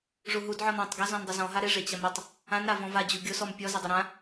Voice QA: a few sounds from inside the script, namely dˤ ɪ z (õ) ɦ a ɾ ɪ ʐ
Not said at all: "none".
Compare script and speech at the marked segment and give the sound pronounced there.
ɔ̃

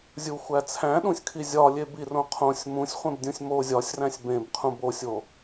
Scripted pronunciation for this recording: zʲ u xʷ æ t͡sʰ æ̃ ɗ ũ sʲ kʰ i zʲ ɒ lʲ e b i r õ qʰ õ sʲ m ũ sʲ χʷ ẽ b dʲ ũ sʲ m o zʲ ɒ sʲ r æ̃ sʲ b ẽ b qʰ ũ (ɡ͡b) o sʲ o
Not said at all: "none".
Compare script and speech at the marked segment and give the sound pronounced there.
b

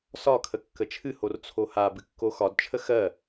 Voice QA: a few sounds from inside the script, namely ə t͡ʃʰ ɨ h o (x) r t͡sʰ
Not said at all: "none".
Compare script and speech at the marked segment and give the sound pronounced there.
none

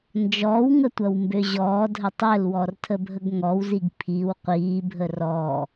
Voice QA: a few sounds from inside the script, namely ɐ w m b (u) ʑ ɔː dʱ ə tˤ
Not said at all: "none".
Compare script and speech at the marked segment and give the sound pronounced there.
ø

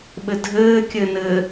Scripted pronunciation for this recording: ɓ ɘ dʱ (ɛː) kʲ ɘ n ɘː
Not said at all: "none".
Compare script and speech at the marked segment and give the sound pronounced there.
ɘː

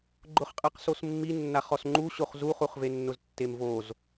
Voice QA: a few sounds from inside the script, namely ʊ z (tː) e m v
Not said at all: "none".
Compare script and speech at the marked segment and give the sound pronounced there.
tː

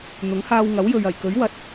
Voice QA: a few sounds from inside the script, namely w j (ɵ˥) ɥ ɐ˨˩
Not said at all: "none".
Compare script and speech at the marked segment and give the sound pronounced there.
ɵ˨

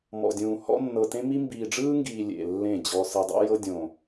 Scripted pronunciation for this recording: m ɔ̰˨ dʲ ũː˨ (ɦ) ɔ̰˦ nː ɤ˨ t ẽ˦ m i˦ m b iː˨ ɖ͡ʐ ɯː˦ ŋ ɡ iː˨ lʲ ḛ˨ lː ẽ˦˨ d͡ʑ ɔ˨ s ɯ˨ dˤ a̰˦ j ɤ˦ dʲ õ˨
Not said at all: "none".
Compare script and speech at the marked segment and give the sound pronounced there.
h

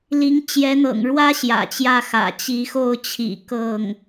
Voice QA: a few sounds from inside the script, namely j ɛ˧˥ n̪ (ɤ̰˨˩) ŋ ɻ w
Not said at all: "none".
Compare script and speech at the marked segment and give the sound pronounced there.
ɤ̰˨˩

